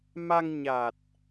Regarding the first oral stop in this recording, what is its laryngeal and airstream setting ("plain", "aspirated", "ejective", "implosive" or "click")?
plain